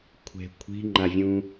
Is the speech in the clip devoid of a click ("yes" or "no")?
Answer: no